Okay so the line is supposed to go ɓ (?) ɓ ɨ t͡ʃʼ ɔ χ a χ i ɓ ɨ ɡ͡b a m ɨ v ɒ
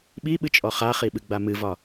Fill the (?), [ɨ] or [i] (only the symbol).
i